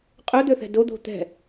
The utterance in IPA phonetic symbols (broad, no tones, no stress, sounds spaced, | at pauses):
qʼ ø d̪ ø θ ɛ̤ d o d̪ o̤ t̪ ɛ̤